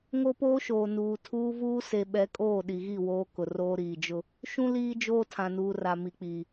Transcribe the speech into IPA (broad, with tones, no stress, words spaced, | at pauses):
ŋo˦poː˦ʃoː˨ nuː˨ tʰuː˦vuː˦ se˨ɓɛ˨˦kʼoː˦˨ ɗi˨ɣi˦˨ woː˦ kʊ˨roː˦ ɾiː˨d͡ʒʊ˦ | ʃũ˦ liː˦d͡ʒoː˦ tʰã˨nuː˨ ra˨mi˨k͡piː˨